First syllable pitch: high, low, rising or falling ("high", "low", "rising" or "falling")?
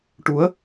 rising